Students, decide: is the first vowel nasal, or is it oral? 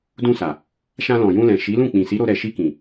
nasal